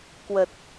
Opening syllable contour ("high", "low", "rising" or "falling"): low